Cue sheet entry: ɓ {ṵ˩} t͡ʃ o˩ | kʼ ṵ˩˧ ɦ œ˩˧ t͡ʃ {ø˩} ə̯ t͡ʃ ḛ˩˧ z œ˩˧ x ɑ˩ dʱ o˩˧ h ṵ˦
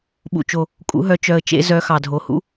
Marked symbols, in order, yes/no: yes, no

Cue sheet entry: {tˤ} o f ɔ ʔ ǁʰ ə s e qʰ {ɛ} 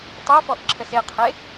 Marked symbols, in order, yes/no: yes, no

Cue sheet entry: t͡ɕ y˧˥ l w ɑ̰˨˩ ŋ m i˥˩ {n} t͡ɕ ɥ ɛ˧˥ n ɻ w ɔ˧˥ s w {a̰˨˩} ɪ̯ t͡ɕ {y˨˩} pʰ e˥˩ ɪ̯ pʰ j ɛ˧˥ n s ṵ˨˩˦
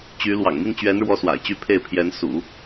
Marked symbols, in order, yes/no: yes, yes, no

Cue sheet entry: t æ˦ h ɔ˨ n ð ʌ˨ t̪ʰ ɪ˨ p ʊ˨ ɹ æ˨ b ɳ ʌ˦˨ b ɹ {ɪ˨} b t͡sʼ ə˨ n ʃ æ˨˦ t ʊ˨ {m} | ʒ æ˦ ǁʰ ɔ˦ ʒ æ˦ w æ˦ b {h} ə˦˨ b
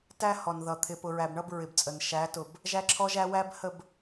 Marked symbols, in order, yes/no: yes, no, yes

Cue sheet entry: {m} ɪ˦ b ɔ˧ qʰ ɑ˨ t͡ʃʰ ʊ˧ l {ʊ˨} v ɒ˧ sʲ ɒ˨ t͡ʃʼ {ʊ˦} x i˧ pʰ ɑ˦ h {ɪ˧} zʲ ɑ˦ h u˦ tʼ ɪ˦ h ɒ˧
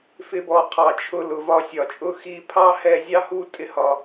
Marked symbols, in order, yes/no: no, yes, yes, no

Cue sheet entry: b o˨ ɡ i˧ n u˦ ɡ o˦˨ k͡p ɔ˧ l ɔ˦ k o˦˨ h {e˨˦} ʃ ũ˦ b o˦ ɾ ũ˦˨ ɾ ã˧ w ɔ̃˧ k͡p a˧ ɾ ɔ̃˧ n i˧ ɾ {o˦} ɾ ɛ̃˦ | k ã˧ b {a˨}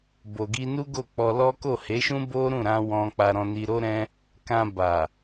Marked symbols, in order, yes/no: yes, yes, yes

